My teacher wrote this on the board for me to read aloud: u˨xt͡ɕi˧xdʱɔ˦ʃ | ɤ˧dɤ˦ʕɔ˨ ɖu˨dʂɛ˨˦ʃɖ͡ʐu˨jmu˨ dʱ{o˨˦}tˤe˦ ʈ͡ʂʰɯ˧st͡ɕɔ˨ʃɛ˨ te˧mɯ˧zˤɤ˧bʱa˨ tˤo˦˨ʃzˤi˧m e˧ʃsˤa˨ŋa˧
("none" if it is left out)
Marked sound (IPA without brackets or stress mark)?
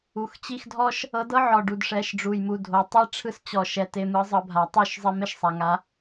o˨